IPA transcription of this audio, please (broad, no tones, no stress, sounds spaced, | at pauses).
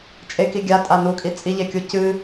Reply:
t͡ʃʼ e k i ɡʲ a tʼ a n u kʼ i t͡sʼ i ʎ e kʲ u c ɨ